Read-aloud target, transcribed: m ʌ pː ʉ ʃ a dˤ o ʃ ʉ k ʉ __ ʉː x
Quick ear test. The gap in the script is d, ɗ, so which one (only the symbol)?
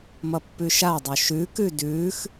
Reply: d